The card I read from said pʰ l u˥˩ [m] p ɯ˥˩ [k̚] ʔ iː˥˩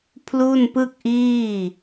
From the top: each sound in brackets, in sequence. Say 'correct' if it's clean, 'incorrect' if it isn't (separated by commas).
incorrect, correct